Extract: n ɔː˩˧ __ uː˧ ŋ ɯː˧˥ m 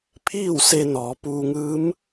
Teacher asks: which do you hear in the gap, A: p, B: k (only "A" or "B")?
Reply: A